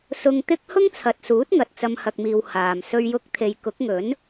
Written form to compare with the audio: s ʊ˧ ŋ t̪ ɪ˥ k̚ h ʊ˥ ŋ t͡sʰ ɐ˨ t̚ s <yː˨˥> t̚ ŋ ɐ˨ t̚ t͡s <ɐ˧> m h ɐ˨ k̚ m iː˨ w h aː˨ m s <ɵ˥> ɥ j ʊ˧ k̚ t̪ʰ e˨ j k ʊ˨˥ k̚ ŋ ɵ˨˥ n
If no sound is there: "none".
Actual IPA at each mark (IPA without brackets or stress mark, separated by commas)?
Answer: uː˨˥, ɐ˧, ɵ˧